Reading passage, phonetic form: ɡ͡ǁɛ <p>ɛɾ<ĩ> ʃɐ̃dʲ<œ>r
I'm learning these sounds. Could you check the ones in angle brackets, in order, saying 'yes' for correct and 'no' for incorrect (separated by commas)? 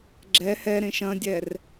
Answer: no, no, no